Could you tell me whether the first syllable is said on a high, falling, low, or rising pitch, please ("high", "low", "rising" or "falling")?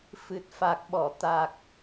low